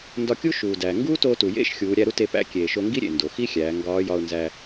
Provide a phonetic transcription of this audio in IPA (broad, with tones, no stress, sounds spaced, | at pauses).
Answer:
n d ɒ˧ kʲ u˥ ʃ uː˩ d æː˩ ŋ ɡ uː˥ t oː˧ t u˩ j ḛ˥ ʃ xʲ uː˩˧ ɾʲ æ˧ ɾ u˥ t e˧ p æ̰˧˥ kʲ eː˩ ʃ o˧ ŋ ɡ i˥ ɾʲ ḛ˩ n d o˩ x i˥ xʲ æː˩˧ ŋ ɡ ɒː˧˥ j ɒ˧ ʊ̯ n z æ˧